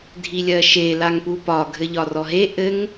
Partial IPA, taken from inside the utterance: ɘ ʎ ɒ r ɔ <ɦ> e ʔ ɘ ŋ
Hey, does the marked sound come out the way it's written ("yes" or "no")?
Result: yes